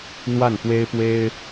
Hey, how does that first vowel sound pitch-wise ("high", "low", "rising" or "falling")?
falling